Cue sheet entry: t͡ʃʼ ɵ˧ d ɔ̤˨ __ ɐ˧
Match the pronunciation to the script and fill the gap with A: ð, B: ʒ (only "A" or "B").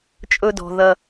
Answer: A